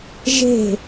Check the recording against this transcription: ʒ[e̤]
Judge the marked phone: correct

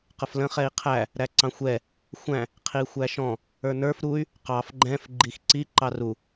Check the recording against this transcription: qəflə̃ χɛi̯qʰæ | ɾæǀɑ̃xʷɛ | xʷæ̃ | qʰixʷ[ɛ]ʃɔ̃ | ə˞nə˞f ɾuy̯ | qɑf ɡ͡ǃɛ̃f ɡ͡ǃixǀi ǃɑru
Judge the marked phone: incorrect: æ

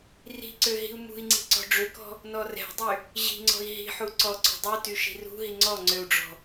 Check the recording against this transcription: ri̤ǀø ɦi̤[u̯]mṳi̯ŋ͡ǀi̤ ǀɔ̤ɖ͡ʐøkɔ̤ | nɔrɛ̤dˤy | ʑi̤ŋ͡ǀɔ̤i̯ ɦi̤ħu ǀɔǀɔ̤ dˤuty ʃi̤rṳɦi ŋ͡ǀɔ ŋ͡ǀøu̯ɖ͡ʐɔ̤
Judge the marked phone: correct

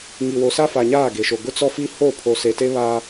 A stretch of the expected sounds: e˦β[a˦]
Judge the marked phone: incorrect: aː˦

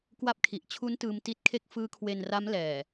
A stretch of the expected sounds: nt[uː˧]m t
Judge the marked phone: incorrect: ɯː˧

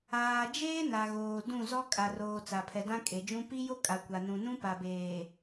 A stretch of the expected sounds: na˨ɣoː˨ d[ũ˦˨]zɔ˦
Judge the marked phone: correct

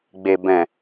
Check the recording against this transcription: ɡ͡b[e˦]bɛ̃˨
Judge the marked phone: incorrect: e˨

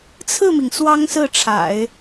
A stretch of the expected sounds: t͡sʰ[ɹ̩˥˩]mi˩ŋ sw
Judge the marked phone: correct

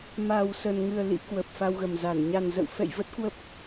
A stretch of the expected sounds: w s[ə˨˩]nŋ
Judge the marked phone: correct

